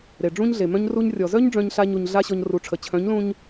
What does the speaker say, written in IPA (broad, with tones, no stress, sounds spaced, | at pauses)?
ɾ e˨ ɖ͡ʐ ũ˦ ɲ ɮ e˨ m œ̃˦ ɲ r u˧ ɲ rʲ ɔ˨ z œ˦ ɲ ɖ͡ʐ œ̃˦ ɲ ɬ a˦ ɲ u˧ ɲ ɮ a˦ ɕ ɔ˧ ɲ r u˨˦ ʈ͡ʂʰ ə˨ t͡ɕʰ œ̃˨˦ ɲ l ũ˧ ɲ